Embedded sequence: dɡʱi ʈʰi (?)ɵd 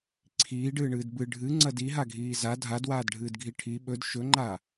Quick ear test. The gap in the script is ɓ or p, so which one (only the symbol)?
ɓ